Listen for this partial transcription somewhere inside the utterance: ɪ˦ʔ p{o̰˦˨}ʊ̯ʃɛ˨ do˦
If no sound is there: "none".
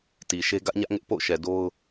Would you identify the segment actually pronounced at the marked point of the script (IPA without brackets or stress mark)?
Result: o̰˦˨